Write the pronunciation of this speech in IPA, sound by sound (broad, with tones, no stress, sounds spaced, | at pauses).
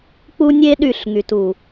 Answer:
k͡p u˦ nʲ e˦ ɗ y˦˨ ɬ ŋ y˨ t u˨